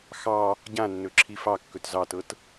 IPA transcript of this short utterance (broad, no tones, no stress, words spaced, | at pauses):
xɑ | ɟãnːɵǁʰi fɑkːɵt zɑtɤt